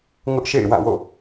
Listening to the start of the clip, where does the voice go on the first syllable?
high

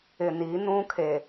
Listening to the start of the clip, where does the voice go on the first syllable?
low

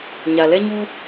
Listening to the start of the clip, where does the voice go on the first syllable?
low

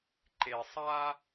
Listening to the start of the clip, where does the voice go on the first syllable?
low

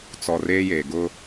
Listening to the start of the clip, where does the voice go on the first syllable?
low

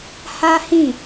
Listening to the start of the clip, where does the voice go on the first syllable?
high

